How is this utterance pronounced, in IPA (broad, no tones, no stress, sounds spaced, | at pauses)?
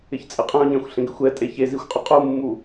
ɪ ç t͡sʼ ɪ qʼ ɛ̃ ʊ̯ ɲ ɛ̃ xʷ ɬ ẽ ɡ ɪ xʷ ɛ tʼ e ç e z i xʷ qʼ ɛ qʼ u mː u